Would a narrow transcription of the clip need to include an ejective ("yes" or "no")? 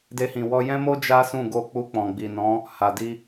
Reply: no